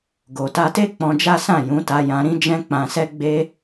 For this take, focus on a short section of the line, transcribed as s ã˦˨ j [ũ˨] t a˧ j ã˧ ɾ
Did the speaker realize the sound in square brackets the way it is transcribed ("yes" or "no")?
no